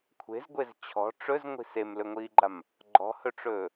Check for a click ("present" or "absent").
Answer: present